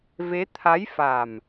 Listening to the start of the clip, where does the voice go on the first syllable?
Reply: rising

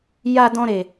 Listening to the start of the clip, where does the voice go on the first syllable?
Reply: high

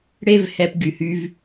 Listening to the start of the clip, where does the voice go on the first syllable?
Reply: high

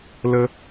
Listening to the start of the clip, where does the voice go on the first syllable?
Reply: high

